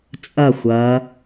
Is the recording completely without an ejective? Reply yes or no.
no